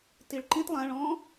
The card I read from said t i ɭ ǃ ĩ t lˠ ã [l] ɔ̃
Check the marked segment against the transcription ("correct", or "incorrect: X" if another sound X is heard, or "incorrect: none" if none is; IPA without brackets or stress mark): incorrect: ɭ